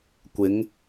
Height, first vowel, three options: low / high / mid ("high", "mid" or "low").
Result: high